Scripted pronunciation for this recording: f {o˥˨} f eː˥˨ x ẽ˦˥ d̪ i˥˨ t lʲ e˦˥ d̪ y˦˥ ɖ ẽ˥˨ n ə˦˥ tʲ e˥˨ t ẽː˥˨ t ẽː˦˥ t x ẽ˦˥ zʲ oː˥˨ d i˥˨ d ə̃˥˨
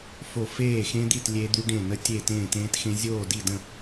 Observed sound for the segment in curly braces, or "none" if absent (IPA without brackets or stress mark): o˥˨